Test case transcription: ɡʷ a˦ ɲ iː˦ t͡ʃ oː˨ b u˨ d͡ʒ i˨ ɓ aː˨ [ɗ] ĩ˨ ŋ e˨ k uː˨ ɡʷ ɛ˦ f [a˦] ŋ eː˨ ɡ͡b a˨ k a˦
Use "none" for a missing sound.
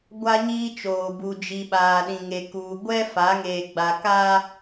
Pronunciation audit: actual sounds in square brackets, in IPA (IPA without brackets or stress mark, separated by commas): ɗ, a˨˦